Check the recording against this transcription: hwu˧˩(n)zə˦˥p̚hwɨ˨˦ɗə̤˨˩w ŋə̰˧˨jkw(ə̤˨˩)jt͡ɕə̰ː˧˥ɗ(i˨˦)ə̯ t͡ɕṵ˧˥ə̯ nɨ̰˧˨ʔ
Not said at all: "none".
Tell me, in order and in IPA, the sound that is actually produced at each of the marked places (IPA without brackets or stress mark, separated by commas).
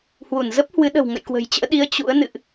n, ə̤˨˩, i˨˦